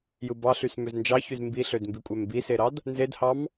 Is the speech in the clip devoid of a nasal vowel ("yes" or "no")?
yes